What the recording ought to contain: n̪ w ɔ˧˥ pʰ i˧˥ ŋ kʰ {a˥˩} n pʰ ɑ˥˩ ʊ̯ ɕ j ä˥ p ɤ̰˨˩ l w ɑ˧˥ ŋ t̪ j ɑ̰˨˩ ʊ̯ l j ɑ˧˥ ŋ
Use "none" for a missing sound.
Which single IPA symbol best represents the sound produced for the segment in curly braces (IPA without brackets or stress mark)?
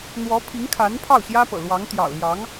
a˧˥